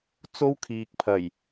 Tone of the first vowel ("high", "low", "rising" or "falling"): high